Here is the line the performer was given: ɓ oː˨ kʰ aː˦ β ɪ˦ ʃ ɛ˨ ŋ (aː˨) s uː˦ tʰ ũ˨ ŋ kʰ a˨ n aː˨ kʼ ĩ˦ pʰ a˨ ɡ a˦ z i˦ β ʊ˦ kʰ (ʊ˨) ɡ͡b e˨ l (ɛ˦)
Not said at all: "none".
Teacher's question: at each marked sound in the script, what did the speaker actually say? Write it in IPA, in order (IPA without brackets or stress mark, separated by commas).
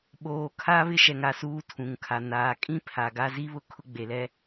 a˨, ʊ˦, ɛ˦